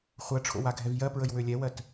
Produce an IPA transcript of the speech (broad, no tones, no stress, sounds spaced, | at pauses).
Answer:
χʷ ɜ ʈ͡ʂʰ o̰ w a ɡʱ ɛ v j ɜ p ɹ ə j w ø lʲ ɛ w ɜ t